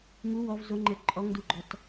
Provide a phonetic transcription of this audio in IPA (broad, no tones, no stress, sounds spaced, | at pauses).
ŋ u w ɔ v z o ŋ͡ǃ ɘ ǃʼ ɔ ŋ d u ɡ͡ǃ ɔ t